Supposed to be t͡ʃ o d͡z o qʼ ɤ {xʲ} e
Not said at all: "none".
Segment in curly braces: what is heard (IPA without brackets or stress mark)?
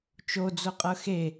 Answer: x